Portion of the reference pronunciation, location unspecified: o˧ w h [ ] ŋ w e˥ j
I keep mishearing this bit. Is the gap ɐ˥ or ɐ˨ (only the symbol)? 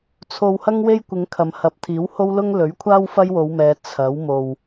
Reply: ɐ˥